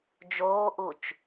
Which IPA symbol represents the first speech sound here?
d͡ʒ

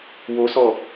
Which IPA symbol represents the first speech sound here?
w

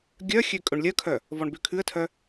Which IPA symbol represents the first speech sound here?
ɡʲ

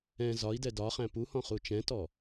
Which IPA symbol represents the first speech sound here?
ɛ̃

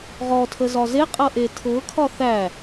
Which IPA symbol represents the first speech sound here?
ʁ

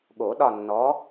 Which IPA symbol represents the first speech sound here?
ɠ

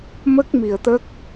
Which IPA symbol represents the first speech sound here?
m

